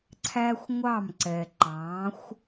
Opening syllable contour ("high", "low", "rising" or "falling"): high